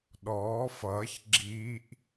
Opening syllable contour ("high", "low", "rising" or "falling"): rising